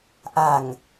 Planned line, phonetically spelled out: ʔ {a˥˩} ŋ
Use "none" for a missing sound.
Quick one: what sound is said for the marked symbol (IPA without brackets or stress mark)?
a˨˩